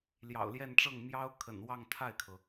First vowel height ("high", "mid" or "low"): low